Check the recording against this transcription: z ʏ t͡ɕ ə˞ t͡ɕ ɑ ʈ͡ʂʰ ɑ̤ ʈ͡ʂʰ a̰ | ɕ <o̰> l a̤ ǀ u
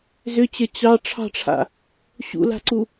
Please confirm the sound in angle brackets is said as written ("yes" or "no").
no